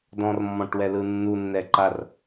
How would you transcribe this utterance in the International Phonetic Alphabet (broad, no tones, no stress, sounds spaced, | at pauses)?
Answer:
d ɔ̃ r mː ɔ̃ ʈ w ɛ l ɯ nː u nː ɛ ǃ a r